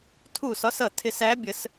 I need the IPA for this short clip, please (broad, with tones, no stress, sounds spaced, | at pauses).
tʰ u˧˩ s ɒ˨˦ s ʌ˧˩ tʰ ɪ˨˩˦ s æ˨˦ bʲ ə˨˩˦ s